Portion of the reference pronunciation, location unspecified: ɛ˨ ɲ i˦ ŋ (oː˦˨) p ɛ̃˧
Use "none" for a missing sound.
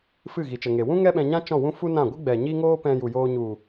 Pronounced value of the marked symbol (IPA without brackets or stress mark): oː˦